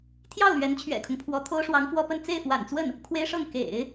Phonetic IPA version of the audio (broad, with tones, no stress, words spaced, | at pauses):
t̪ʰjɑ˥˩ʊ̯ lɥɛ˧˥nt͡ɕʰɥɛ̰˨˩kʰʊ˦ŋpʰwɔ˧˥ t̪ʰo˥ʊ̯ʂwɑ˧˥ŋfwɔ˥pə˥˧n t͡se˥˩ɪ̯fwa̰˨˩nt͡swə˥˩n | kʰwe˥ɪ̯ʂɤ˥˩ŋ kḛ˨˩˦ɪ̯